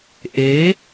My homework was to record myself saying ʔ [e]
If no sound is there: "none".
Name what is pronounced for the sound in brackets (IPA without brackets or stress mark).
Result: e